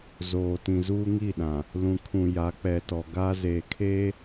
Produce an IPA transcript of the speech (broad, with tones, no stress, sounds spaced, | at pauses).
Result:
z oː˨ t ĩ˨ z uː˦ ŋ i˦˨ ɗ ã˨ | l ũ˨ kʰ ũ˨ j a˨˦ k͡p ɛ˨ t ɔ˨ ɡ a˦ z eː˨ kʰ eː˦